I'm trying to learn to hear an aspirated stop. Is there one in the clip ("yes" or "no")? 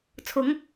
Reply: yes